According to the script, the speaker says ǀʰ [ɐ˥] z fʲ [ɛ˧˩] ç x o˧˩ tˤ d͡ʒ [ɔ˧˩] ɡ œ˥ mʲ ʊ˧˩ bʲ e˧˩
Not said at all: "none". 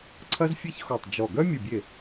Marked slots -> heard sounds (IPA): ɐ˥, ɛ˥, ɔ˧˩

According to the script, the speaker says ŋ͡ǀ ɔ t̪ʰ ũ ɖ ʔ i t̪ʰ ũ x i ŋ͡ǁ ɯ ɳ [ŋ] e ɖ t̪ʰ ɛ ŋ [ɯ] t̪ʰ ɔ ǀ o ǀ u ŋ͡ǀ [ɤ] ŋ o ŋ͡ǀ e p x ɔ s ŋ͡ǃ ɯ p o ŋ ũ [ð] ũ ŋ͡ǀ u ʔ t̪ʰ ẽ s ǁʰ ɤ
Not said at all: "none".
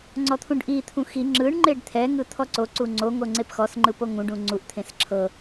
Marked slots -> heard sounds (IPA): ŋ͡ǃ, ɯ, o, ɖ

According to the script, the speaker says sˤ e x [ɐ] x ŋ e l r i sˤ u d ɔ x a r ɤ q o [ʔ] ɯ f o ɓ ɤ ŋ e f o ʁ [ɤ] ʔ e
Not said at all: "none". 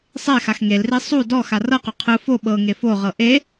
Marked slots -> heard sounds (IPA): a, qʰ, ɤ

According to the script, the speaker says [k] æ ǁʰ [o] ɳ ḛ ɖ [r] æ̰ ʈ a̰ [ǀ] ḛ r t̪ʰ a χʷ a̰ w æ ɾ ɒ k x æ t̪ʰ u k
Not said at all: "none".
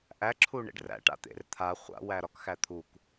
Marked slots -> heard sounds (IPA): ʔ, u, r, t̪

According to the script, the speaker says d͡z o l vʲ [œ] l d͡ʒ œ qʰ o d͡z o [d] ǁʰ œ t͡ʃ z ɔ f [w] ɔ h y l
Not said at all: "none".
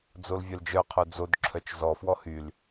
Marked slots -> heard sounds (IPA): œ, d, w

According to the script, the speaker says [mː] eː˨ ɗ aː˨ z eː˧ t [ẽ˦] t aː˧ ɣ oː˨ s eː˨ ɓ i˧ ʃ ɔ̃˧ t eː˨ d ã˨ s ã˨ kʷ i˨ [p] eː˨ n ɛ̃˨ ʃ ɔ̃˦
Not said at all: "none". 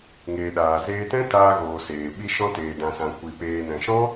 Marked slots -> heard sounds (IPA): ŋ, ɛ̃˦, p

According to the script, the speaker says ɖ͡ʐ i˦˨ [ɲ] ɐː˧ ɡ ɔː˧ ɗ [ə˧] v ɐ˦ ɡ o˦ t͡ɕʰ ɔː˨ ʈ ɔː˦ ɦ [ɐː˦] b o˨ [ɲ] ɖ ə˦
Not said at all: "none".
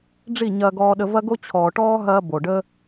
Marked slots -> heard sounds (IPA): ɲ, ə˧, ɐː˦, none

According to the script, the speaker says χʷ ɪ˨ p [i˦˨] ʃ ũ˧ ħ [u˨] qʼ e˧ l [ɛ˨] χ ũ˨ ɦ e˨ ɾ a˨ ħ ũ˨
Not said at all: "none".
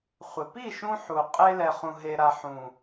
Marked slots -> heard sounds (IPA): i˦˨, u˨, ɛ˨

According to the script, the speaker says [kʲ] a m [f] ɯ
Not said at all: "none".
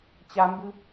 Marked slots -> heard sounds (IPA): t͡ɕ, b

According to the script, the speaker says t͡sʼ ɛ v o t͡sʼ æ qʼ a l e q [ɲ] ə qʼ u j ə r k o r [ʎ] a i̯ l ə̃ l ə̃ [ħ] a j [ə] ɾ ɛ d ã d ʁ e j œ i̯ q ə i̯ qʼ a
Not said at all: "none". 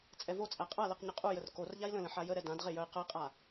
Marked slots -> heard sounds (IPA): ɲ, ʎ, ħ, ə

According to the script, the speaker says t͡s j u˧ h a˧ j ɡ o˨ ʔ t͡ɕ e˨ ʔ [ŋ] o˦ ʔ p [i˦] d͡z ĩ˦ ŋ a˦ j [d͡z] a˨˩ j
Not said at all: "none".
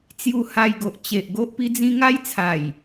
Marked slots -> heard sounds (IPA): ɡ, i˦, t͡sʰ

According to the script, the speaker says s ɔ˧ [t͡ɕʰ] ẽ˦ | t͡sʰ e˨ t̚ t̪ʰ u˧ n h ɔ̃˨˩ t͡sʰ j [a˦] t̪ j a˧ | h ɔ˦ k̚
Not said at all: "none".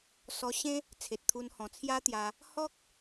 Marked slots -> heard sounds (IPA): ɕ, a˦

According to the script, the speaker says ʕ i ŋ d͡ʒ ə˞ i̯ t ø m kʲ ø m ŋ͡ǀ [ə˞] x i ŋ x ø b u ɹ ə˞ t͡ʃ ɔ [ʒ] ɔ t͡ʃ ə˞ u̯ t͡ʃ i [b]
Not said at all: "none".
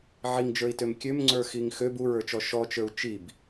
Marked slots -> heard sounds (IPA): ə˞, ʃ, b

